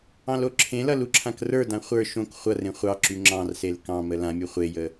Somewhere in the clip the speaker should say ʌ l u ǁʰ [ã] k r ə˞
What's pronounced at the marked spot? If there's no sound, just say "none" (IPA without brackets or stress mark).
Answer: ã